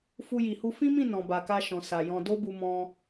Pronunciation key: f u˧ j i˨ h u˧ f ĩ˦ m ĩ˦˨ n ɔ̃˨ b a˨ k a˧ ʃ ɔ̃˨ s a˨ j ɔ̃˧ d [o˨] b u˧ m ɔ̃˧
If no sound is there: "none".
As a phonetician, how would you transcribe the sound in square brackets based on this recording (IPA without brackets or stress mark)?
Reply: o˦